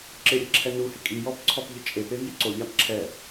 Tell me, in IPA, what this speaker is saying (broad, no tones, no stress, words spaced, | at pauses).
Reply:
ǁɪɾʲeǁʰɛ nuhɪ kʼijɔpǀʰɔpʎɪ t͡ʃʼepevjɪ ǀoʎap ǁʰɛ